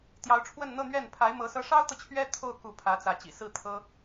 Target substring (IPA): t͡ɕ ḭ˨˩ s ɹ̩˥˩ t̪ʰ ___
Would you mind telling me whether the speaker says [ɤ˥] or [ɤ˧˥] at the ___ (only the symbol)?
ɤ˥